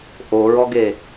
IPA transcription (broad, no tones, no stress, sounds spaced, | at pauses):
ʔ o ɹ ɔ ɡ e